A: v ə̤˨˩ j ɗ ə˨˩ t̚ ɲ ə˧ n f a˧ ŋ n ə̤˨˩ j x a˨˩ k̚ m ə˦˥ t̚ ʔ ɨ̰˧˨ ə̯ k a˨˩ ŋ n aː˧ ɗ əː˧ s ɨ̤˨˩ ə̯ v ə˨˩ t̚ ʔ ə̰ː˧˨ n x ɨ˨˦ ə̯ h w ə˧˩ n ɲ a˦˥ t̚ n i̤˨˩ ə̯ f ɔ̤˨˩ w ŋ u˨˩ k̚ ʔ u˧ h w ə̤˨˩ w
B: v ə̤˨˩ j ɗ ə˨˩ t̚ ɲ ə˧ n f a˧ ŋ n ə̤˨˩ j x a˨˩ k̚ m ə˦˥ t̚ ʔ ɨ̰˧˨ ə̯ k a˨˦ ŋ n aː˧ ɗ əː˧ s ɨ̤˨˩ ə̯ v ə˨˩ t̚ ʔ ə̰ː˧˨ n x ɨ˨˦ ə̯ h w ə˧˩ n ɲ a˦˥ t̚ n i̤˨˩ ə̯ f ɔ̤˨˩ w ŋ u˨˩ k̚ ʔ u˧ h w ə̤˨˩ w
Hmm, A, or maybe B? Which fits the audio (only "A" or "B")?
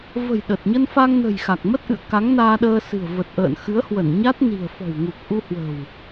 B